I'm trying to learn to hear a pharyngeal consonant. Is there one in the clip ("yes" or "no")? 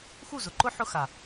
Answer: yes